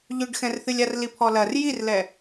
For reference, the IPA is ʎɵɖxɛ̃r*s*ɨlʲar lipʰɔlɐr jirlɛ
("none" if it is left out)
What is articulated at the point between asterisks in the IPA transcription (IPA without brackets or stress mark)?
θ